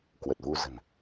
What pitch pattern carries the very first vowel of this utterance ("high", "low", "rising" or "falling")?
low